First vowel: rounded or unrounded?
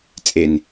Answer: unrounded